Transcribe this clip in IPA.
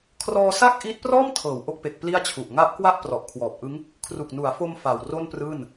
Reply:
kʰrɔː˧sa˥˩k̚ ʔiː˦˥t̚prɔː˥˩mtʰɤː˩˦w ʔo˦˥k̚pe˨˩k̚ pli˥˩a̯t͡ɕʰu˨˩ʔ ŋa˦˥ʔkwa˥˩ʔ prɔ˨˩ʔkʰwɔː˨˩p̚ ʔɯ˦˥ŋ | kʰru˨˩k̚nu˩˦a̯fo˧m fa˨˩wro˥˩nprɯː˥˩n

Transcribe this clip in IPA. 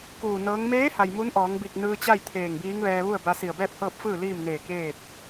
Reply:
kuː˧˩nɤː˧˥ŋ meː˧˥ha˩j mu˧˥nʔɔː˩˧ŋbi˧˩k̚nɯː˧ t͡ɕa˥˨j t̪ʰeː˧˩ŋbiː˧˥ŋʋɛː˧ ʋu˥˨ə̯ba˧ si˧˩ə̯bɛː˥˨p̚hɤː˥˨p̚fɯː˥˨ liː˥˨mneː˧˩ keː˥˨t̚

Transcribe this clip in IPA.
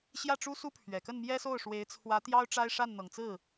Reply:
ɕjä˥˩ʈ͡ʂu˥su˥ pʰɥɛ˨˩kə˥˩n mjɛ˥so˥˩ʊ̯ʂwe˧˥ɪ̯ t͡sʰwä˧˥t̪jɑ˥ʊ̯ ʈ͡ʂa˥ɪ̯ʂa˥˩n n̪ɤ˨˩ŋt͡sɹ̩˥˩

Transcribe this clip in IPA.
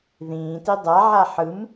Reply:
ðĩːti dˤaʕa ħɯm

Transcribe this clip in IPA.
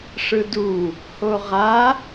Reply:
ʂɯdu | hoʁa

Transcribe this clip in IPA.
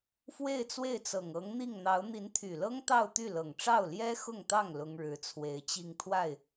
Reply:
fwe˥˧ɪ̯t͡swe˥˩ɪ̯t͡sɤ˨˩ŋ ɤ˧˥ŋn̪i˥˩ŋn̪ɑ˧˥ʊ̯ n̪i˧˥nt̪ʰy˨˩lɤ˥ŋ t̪ɑ˥˧ʊ̯t̪y˥˩lɤ˨˩ŋ ʈ͡ʂɑ˥˩ʊ̯ljɛ˥xʊ˥˧ŋt̪ɑ˥˩ŋ lʊ˥ŋɻɻ̩˧˥t͡sʰwe˧˥ɪ̯t͡ɕi˥˧ŋ t̪ʰwa˥˩ɪ̯

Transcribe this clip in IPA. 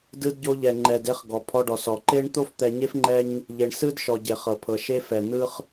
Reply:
dɯ˧dɟo˧ʎɛ˩ ŋ͡ǃɛ˩de˧χ ɡɔ˩pʰɔ˧ɖɔ˩s ɔ˩ǃe˥ɳ t̪o˥ft̪ɛ˧ɲe˥f ŋ͡ǃɛ˥ɲ | ʎe˩ɳsɯ˥dʃɔ˩ ɟe˩χɤ˩pʰɤ˩ ʃe˧fɛ˩ n̪ɯ˥χ

